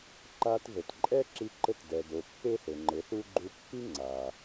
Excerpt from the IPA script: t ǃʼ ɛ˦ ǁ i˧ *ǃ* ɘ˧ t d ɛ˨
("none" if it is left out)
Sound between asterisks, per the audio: ǃ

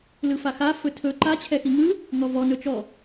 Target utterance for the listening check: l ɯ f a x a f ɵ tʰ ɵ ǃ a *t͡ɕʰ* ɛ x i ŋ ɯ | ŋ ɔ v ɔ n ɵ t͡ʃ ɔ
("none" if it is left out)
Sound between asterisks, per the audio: t͡ɕʰ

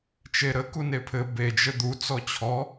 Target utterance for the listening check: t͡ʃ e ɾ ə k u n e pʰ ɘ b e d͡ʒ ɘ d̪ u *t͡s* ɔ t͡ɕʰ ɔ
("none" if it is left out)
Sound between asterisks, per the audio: t͡s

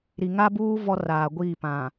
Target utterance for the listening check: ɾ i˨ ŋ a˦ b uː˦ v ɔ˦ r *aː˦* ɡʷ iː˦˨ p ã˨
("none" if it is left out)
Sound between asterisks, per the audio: aː˨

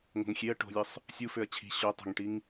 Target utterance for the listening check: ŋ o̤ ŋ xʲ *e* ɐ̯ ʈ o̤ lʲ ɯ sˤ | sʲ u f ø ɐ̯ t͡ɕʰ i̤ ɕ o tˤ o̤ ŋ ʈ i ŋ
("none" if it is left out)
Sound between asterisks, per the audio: e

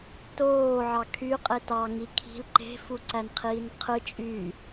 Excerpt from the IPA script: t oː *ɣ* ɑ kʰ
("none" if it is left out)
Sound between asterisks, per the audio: ʕ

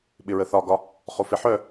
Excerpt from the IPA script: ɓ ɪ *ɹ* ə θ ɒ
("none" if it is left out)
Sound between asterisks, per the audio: ɹ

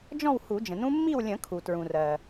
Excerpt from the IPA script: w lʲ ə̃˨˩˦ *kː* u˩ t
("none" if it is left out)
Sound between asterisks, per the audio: kʰ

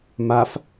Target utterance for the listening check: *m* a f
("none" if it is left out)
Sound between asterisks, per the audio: m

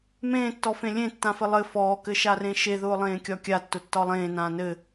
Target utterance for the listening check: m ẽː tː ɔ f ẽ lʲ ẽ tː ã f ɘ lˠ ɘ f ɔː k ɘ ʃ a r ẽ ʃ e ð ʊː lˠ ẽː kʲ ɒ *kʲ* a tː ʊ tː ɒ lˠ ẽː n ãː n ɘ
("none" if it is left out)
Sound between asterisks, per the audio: kʲ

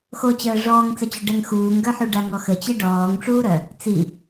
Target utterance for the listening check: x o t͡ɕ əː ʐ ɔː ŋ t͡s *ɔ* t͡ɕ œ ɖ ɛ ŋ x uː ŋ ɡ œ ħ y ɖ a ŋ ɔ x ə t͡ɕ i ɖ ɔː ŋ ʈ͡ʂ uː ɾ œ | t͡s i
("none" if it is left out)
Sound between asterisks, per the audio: ə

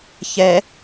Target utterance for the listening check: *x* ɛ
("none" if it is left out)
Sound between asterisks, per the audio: ç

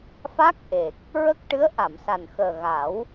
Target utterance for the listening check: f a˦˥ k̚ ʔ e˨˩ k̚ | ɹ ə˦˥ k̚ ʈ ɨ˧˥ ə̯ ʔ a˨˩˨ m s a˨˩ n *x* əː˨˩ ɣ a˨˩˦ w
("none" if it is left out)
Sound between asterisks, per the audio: x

